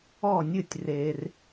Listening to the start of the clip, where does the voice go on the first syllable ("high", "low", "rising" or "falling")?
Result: falling